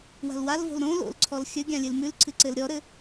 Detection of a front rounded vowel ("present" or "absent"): absent